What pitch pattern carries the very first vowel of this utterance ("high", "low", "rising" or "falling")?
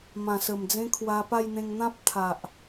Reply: low